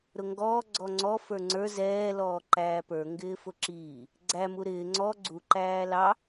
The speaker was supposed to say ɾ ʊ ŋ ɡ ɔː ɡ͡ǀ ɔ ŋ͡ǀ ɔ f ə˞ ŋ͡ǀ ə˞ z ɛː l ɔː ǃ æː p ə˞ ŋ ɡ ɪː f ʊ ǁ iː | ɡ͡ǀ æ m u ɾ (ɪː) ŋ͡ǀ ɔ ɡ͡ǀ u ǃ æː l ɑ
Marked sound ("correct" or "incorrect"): correct